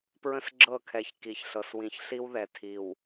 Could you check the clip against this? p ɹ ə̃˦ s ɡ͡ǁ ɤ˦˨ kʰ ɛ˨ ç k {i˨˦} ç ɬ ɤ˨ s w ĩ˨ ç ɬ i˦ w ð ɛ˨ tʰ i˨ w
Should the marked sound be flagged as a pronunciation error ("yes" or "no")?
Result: yes